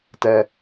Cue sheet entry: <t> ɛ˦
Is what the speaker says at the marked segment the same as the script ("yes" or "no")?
yes